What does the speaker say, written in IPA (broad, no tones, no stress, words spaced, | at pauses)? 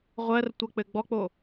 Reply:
ʁʷɜrtʷɜk͡pɘ ɡ͡bɔk͡po